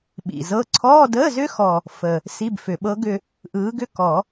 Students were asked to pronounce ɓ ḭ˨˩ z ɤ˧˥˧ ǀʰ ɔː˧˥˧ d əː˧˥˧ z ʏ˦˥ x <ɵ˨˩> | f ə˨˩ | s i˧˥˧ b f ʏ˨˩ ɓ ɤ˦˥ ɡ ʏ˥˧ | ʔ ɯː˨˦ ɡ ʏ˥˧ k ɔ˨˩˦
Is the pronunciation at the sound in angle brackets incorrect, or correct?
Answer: incorrect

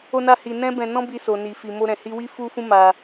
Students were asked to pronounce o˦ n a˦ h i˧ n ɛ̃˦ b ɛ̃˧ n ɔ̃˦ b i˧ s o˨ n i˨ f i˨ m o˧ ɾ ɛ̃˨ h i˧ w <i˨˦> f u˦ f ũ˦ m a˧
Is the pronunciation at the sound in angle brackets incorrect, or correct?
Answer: incorrect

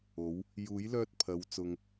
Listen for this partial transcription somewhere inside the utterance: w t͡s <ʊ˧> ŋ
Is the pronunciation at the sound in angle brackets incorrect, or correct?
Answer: correct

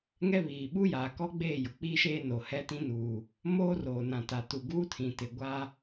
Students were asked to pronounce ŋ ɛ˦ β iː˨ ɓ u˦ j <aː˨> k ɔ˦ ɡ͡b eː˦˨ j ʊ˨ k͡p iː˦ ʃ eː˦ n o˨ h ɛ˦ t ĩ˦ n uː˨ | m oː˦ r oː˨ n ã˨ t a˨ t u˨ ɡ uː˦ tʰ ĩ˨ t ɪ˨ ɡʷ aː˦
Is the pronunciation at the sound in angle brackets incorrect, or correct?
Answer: correct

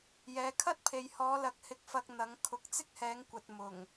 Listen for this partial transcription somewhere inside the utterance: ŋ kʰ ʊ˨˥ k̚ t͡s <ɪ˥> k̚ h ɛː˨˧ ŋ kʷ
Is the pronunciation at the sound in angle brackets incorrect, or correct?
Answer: correct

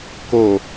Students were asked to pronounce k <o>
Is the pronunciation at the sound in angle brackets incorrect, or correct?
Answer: correct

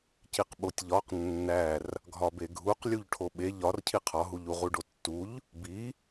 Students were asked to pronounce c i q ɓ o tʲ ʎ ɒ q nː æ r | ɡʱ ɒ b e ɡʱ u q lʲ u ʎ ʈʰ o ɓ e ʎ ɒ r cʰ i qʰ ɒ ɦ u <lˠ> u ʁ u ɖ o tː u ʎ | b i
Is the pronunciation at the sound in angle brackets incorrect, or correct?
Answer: incorrect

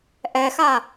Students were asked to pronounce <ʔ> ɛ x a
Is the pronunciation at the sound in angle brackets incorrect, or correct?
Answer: correct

